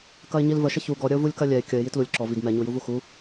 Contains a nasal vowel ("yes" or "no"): no